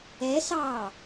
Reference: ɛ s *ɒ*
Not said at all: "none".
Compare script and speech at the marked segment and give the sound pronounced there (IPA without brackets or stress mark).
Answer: ɑ